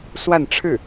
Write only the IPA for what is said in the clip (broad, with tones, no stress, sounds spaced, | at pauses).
s w a˥˧ n ʈ͡ʂʰ ɻ̩˥˩